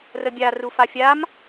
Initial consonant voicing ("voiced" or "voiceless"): voiced